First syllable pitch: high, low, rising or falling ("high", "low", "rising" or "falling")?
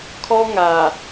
high